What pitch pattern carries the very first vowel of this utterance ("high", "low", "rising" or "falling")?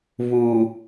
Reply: low